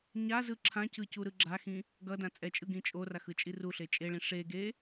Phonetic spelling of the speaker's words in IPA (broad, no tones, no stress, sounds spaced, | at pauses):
ɲ a z ɯ ǁʰ ã c ɯ c u ɾ ɯ ɡ͡ǁ a x ĩ | ɡ ʌ d ã t͡sʼ ɛ t͡ʃʼ ɯ ɡ ĩ t͡ʃʼ o r a x ɯ t͡ʃʼ i r u ɬ e t͡ʃʼ e ɭ ĩ ʂ e ɡ e